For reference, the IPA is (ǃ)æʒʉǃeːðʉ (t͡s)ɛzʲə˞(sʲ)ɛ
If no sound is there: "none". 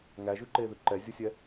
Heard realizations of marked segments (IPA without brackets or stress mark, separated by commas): ŋ, ǃ, sʲ